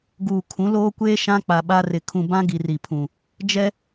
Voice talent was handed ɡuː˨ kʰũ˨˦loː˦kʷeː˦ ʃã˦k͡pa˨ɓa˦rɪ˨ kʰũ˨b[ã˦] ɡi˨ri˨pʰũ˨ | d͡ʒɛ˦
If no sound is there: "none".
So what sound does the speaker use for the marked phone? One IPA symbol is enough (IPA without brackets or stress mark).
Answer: ã˦